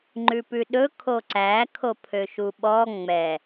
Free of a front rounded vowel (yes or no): no